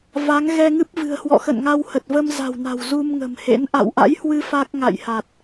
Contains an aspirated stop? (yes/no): no